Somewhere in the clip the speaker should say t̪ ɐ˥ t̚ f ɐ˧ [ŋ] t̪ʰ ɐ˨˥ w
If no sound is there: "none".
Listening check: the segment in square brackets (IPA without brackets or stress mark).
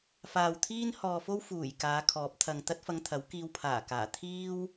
ŋ